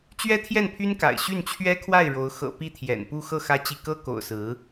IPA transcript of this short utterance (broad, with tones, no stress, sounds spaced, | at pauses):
t͡ɕ ɥ ɛ˥ t̪ʰ j ɛ˥˩ n pʰ y˥ n k a̰˨˩ ɪ̯ ɕ y˥˩ n t͡ɕʰ ɥ ɛ˥ kʰ w a˥˩ ɪ̯ ɻ o˧˥ ʊ̯ x ɤ̰˨˩ p i˥˩ t̪ʰ j ɛ̰˨˩ n p u˥˧ x ɤ˥˩ x ä˥ t͡ɕ i˥˩ k ɤ˥ k o̰˨˩ ʊ̯ s ɹ̩˧˥